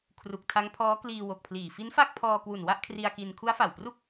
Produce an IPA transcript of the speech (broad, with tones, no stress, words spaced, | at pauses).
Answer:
kʰru˨˩k̚tʰa˦˥ŋpʰɔː˦˥ kliː˧wo˨˩k̚pʰliː˨˩ fi˦˥nfa˥˩k̚pʰɔː˧ kwu˨˩n wa˥˩ʔkʰri˧a̯ki˧n kʰu˦˥a̯fa˨˩wpru˥˩k̚